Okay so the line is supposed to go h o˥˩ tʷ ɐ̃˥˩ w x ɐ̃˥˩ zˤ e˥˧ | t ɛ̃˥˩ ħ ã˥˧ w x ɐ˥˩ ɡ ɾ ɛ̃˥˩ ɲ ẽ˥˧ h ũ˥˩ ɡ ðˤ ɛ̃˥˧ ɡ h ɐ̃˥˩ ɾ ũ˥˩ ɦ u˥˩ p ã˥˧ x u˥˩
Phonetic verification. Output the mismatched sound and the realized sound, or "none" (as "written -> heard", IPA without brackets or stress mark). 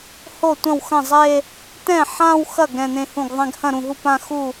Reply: ɲ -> n̪